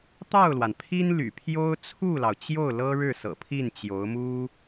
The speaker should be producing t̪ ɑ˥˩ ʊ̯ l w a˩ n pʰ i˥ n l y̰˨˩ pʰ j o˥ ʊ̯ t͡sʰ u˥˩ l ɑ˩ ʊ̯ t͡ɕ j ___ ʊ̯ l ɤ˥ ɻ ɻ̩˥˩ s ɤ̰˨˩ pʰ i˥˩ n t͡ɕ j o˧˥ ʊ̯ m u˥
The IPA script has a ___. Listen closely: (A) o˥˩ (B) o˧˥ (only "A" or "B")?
A